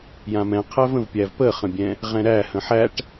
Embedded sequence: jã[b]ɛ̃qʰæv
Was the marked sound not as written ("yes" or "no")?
yes